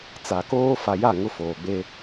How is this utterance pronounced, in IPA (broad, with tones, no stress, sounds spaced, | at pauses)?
t͡s a˨ k oː˦ f a˨ j a˦˨ ŋ ʊ˦ f oː˨ ɡ͡b eː˦